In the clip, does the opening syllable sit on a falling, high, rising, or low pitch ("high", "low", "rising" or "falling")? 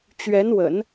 rising